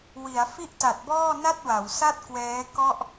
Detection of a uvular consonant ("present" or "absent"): absent